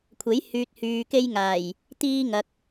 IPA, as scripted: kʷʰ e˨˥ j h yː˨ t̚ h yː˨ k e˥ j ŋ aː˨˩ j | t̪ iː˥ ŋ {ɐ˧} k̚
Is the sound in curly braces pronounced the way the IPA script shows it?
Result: yes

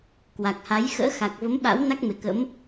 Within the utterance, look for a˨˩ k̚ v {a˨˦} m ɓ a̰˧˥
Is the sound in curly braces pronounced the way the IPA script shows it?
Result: no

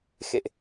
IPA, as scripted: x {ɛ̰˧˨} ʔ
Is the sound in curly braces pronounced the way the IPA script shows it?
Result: no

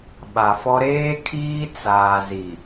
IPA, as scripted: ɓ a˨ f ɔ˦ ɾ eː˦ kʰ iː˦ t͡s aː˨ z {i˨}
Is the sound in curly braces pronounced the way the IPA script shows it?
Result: yes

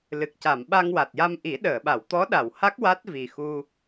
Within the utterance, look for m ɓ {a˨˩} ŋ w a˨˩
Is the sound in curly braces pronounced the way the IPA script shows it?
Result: no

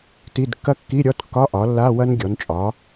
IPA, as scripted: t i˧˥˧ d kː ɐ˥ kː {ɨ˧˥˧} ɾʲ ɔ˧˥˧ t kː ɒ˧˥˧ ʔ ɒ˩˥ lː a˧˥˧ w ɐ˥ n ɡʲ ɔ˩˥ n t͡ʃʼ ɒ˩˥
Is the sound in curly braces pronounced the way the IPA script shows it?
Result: no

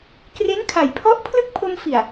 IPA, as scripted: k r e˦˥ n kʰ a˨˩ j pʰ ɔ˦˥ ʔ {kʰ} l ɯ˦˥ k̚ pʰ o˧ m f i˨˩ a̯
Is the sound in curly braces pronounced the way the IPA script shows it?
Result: no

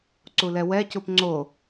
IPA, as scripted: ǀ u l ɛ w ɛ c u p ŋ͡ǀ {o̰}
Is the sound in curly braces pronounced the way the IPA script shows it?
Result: no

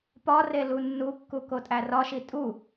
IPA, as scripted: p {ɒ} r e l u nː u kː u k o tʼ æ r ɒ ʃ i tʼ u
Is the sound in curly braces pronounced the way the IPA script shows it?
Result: yes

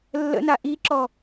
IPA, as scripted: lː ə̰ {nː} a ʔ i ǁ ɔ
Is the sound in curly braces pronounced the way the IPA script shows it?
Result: no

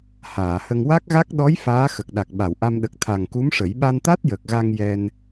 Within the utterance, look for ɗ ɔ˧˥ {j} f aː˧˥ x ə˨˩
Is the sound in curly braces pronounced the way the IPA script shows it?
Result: yes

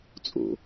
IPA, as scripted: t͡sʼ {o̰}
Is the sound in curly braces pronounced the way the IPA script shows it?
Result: yes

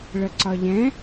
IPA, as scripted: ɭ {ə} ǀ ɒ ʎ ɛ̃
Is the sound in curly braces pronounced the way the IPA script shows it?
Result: yes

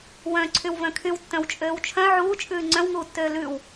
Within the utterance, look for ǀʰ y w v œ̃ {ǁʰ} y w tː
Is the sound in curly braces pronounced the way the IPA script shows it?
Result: no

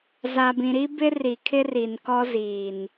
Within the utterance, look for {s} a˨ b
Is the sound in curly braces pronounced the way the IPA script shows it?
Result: no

